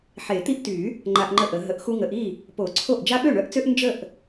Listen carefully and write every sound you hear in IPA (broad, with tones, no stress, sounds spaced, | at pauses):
ħ e˨˩˦ t̪ i˦ ʔ t y˨˩˦ | ŋ͡ǃ a˦ ʔ ŋ͡ǃ ə˥˩ ʔ ə˨˩˦ ɦ ə˨˩˦ ʔ x u˦ ŋ ə˨˩˦ ʔ i˥˩ | p o˨˩˦ ǀʰ o˥˩ ʔ d͡ʒ a˦ ɓ ø˥˩ ɳ œ˦ ʔ t͡s ø˦ ʔ n d͡ʒ ə˥˩ ʔ